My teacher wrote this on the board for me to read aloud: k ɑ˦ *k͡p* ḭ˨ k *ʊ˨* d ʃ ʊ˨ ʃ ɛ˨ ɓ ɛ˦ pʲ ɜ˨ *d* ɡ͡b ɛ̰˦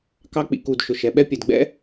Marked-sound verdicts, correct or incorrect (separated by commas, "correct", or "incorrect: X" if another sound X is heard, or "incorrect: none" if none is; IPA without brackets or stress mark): correct, incorrect: u˨, correct